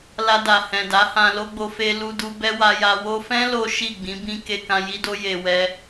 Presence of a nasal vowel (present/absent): present